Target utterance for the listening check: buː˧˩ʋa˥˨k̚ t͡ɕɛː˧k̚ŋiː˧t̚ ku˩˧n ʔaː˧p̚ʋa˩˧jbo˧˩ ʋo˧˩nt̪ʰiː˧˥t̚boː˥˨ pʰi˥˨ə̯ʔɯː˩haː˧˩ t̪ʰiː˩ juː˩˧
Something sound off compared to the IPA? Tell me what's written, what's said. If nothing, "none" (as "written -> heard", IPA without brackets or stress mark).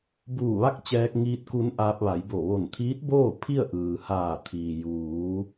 none